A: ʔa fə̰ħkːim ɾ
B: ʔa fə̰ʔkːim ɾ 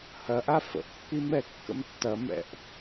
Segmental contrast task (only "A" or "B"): B